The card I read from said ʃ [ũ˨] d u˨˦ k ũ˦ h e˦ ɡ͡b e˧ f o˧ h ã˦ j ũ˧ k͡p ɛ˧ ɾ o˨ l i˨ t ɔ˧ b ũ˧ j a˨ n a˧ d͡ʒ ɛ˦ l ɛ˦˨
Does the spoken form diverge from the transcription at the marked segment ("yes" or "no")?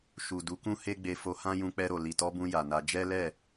yes